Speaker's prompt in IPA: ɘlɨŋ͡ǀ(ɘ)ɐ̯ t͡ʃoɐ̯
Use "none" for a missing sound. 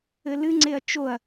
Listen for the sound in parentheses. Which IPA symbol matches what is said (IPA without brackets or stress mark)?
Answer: e